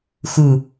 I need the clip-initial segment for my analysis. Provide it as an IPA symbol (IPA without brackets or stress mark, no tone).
x